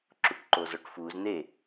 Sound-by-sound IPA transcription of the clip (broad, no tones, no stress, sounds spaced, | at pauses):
ǁ u ʈ ǃ o z ɔ ʈ f u z n̪ e